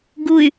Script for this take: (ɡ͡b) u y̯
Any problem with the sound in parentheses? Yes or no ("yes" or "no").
yes